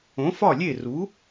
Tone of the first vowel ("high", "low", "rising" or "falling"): rising